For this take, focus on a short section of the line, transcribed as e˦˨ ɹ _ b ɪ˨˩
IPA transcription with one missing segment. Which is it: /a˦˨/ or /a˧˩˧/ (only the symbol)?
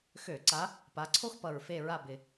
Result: a˦˨